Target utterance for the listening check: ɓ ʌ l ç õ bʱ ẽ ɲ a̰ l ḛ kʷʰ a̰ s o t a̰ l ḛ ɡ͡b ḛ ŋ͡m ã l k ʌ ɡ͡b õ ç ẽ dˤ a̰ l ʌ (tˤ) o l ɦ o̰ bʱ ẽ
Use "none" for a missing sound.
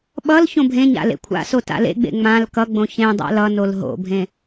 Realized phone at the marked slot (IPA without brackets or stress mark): n